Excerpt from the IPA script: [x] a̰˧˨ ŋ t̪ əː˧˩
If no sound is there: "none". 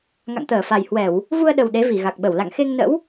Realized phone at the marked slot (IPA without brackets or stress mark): ŋ